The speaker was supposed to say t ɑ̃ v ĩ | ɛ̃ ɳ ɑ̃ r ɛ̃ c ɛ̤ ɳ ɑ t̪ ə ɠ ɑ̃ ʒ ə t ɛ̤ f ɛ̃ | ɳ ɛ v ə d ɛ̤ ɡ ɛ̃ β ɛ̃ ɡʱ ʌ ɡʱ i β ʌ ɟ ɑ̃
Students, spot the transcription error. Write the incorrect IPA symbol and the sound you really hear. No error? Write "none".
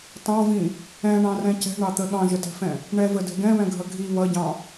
none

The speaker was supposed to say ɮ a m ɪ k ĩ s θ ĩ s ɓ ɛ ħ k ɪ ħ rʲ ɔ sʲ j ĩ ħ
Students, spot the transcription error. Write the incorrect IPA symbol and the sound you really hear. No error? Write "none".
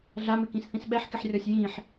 none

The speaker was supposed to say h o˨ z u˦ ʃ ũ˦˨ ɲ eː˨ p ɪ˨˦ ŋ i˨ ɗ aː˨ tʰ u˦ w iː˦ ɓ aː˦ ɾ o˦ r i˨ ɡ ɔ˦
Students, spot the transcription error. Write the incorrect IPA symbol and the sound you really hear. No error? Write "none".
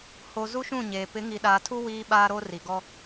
none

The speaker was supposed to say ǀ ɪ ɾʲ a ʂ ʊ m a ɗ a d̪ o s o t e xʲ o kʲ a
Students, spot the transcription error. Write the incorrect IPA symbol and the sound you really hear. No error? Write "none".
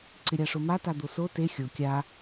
ɗ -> t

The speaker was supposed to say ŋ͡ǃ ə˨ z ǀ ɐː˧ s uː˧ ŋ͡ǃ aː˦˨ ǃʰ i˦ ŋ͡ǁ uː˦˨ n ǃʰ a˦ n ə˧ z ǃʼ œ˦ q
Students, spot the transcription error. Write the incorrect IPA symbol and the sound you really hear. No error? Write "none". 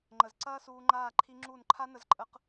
œ˦ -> ə˦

